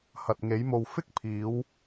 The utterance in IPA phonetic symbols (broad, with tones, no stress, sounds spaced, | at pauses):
h ɐ˨ t̚ ŋ e˨˧ j m o˨ w f ɪ˥ k̚ pʰ iː˨˧ w